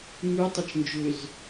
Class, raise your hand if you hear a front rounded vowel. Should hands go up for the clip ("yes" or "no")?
yes